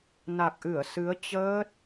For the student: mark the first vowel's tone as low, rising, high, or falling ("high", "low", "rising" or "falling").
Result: low